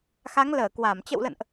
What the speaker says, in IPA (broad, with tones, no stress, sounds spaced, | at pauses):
x a˨˦ ŋ l əː˧˩ k w a˧˩ m t͡ɕ ə̰˧˨ w l ə̰˧˨ n ʔ